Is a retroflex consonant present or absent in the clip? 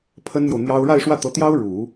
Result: present